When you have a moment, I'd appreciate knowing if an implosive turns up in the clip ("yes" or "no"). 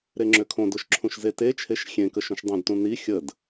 no